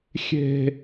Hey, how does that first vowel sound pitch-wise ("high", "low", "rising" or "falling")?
high